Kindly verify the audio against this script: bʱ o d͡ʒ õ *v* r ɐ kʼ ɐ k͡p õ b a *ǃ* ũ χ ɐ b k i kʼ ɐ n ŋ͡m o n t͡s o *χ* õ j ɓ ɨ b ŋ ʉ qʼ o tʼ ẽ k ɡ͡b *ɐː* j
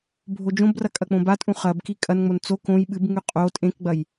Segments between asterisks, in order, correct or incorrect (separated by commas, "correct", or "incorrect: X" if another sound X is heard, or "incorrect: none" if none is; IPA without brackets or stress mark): incorrect: b, incorrect: tʼ, incorrect: k, incorrect: ɐ